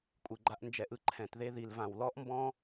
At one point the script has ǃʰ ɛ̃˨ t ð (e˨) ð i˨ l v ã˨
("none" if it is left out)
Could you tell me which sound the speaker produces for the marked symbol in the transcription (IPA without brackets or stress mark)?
e˧